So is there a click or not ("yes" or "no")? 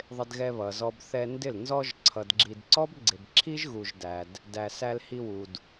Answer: yes